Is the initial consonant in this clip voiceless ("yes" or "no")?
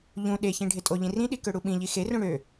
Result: no